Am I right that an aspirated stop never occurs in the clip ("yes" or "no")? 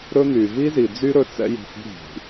yes